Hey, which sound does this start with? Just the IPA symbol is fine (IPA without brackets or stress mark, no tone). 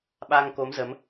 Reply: ɓ